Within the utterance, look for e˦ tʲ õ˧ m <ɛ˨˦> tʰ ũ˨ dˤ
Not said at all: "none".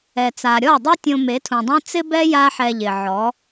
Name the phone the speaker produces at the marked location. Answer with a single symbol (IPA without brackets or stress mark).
e˨˦